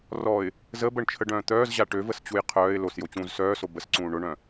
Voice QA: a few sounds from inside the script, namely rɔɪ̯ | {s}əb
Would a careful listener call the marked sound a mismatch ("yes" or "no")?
yes